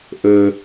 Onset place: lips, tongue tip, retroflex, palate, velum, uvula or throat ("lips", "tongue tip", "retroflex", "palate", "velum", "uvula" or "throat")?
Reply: throat